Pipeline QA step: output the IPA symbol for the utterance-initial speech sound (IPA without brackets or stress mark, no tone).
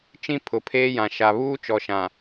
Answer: t͡ʃ